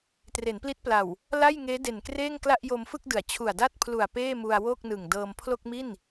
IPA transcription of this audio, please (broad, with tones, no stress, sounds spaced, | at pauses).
t r e˩˦ n p l i˦˥ t̚ p l a˨˩ w | l a˥˩ j ŋ eː˦˥ d e˨˩ n k r eː˥˩ ŋ k l a˥˩ ʔ j o˧ m f ɯ˥˩ k̚ d ɯ˩˦ a̯ t͡ɕʰ u˨˩ a̯ d a˥˩ t̚ pʰ l u˨˩ a̯ p eː˥˩ m u˧ a̯ w o˥˩ k̚ n ɯ˨˩ ŋ d ɤː˧ m pʰ l o˥˩ k̚ m i˥˩ n